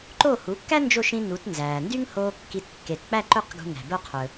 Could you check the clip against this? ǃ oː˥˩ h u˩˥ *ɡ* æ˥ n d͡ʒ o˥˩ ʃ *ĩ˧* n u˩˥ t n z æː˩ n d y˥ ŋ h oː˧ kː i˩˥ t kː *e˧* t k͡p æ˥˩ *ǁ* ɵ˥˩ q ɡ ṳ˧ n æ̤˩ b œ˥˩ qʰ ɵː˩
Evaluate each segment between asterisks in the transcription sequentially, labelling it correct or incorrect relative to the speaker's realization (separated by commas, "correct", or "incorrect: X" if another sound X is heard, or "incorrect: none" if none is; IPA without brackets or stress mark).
incorrect: kː, correct, incorrect: e˩, incorrect: ǃ